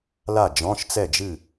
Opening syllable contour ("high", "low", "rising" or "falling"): falling